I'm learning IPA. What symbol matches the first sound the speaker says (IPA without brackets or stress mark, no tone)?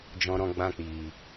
d͡ʒ